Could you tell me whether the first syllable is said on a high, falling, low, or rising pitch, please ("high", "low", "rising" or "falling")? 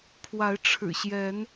rising